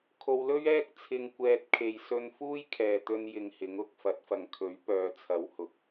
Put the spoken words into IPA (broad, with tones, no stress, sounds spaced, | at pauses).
kʰ o˧ w l ɵ˥ ɥ ɛː˥ k̚ t͡sʰ ɪ˧ ŋ kʷ ɛː˧ t̚ kʰ e˨ j s ɵ˧ n f uː˥ j kʰ ɛː˨ t̪ ɵ˧ n j ɪ˧ ŋ h ɪ˨˥ ŋ ʊ˧ k̚ f ɐ˨˥ t̚ f ɐ˨ ŋ kʰ ɵ˨˥ ɥ p œː˨˧ t͡sʰ ɐ˨˥ w h ʊ˨ k̚